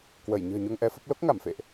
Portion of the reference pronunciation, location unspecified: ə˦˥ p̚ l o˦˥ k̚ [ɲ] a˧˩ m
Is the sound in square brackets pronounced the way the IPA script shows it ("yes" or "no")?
no